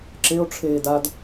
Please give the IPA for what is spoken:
ǁ e o̯ ʈ͡ʂʰ eː d a d

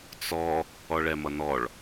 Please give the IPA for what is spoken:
t͡s ɔ | ɔ ɭ ɛ m ʌ n ɔ ɭ

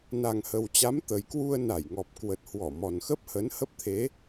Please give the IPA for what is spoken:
n a˨˩ ŋ h ə˨˩ w t͡ɕ a˨˦ m t̪ ə˨˩ j k w u˧ ə̯ n a˧˩ j ŋ ɔ˨˩ p̚ k w ə˨˩ t̚ h w ɔ˧˩ m ɔ˨˩ n x ə˦˥ p̚ h ə˨˦ n h ə˦˥ p̚ t̪ʰ e˨˦

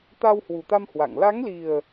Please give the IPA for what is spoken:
t̪ a˧ w h w u˨˩ t̪ a˧ m h w a̰˧˨ ŋ l a˨˦ ŋ l i˨˩ ə̯

